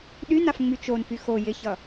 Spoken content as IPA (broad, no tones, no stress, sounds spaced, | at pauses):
ɗ y n a f ŋ͡m y t͡ʃ o n f y x o j ɪ ç ʌ